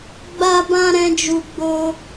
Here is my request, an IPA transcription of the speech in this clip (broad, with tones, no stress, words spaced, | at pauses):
ɡ͡ba˧bã˧ ɾɛ̃˦d͡ʒu˧ ɡ͡bo˦